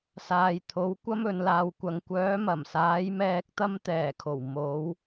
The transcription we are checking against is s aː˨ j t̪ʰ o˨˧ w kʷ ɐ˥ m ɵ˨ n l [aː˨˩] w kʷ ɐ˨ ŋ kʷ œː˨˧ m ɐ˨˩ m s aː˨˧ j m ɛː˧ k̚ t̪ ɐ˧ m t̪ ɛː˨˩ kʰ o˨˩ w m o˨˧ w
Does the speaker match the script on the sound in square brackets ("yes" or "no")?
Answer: no